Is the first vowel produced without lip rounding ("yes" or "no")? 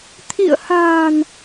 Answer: yes